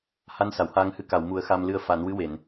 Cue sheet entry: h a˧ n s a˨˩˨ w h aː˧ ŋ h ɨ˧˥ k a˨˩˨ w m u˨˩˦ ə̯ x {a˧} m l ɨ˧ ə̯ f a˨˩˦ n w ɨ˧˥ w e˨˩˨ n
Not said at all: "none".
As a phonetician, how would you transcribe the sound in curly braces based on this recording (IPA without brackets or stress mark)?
a˧